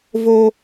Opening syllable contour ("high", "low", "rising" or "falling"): high